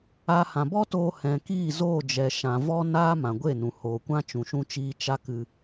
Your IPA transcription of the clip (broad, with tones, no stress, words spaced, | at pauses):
a˦hã˧ bɔ˦toː˧ hɛ̃˨kiː˦˨zoː˦˨ d͡ʒɛ˨ʃã˨vɔ˦naː˦ mã˨ɡʷe˦˨nũ˨ hoː˨kʷã˦t͡ʃũ˨ ʃũ˧t͡ʃiː˧ t͡ʃa˦kɨ˧